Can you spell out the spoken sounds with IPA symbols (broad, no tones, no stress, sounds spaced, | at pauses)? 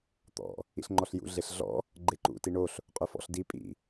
t̪ ɔ̰ | ḭ ɬ ŋ͡ǃ ɔ ɬ j ṵ ɮ e ɬ ɮ ɔ̰ | ɡ͡ǃ e ǃ ṵ t i ɳ o ɬ | qʼ œ f ɔ̰ ɬ d i pʼ ḭ